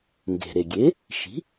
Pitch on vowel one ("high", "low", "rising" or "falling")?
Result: low